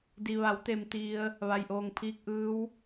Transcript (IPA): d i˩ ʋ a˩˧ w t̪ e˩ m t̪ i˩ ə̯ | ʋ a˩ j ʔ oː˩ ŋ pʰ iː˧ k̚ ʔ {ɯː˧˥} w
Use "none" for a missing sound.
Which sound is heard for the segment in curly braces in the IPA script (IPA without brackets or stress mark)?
ɯː˧˥